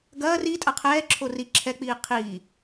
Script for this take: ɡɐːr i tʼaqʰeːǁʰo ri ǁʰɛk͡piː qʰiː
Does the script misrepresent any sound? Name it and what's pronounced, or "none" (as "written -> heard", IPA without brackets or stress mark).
eː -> ɛː